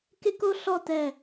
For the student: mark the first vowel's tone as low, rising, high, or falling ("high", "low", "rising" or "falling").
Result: high